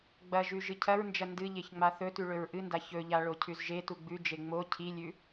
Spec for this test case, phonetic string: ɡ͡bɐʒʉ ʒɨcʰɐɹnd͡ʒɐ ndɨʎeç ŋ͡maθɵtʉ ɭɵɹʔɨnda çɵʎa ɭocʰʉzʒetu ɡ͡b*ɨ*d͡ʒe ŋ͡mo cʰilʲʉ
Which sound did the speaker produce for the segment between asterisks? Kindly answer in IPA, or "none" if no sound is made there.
ʉ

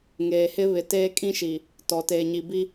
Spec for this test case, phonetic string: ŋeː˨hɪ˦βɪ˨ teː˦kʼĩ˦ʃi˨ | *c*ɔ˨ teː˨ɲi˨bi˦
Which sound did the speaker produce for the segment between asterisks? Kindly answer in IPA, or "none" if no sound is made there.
t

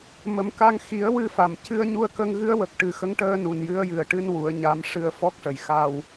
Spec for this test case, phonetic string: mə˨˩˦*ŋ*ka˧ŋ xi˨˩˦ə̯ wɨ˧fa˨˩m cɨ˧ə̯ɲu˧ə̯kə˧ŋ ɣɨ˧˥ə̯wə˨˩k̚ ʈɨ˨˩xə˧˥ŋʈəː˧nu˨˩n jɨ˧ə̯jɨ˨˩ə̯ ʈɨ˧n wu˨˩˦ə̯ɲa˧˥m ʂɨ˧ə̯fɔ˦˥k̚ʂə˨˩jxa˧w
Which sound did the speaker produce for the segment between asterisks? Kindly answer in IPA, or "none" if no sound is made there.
m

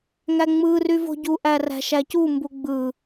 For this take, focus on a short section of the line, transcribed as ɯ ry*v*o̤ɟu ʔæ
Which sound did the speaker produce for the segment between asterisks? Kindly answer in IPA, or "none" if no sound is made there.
v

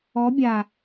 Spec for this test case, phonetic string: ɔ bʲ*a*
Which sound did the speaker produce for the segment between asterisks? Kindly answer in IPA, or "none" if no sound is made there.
a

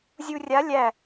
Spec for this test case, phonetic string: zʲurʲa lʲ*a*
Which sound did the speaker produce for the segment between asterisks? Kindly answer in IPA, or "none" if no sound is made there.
æ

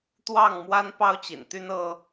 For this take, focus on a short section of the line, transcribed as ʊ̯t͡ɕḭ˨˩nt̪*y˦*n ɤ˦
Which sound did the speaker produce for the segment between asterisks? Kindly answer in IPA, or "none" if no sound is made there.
y˦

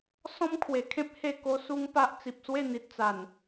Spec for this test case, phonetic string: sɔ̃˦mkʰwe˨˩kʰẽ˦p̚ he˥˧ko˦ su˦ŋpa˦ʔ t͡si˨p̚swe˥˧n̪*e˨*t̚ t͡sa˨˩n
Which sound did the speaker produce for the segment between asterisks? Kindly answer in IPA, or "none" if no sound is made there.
i˨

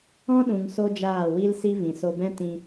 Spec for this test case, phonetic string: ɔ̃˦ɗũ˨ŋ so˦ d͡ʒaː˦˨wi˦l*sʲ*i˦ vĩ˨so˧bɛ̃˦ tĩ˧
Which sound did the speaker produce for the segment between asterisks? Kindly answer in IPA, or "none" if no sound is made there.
s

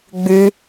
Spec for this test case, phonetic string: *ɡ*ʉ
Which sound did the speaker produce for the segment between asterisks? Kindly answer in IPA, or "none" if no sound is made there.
ɡ͡b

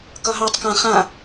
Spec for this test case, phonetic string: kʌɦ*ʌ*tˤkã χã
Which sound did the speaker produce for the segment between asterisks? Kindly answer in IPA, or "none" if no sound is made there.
ɑ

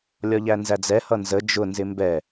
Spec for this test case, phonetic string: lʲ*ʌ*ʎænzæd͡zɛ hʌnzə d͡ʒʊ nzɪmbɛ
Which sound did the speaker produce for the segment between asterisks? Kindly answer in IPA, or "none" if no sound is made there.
ɒ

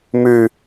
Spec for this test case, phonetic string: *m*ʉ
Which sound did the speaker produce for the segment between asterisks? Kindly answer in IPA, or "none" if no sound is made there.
m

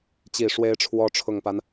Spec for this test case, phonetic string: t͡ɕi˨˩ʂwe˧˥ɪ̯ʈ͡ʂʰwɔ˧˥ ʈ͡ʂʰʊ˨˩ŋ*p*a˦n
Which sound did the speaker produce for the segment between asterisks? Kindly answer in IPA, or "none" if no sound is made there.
p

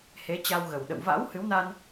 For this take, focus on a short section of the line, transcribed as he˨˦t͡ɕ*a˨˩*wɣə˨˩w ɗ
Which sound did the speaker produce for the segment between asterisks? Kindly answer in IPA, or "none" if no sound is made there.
a˧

